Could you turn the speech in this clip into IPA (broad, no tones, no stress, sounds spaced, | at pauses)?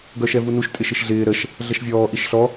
ɡ œ ʃ ɛ v u n u ʃ tʼ ɪ ʃ ɪ ʃ ɮ ɪː ɾ ə ʃ | ɮ ə ʃ vʲ ɔː ʔ i ʃ ɬ ɔ